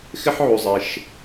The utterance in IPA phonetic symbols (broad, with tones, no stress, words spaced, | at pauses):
xɪ˥ħʕu˨˩zˤɪ˨˩ʃ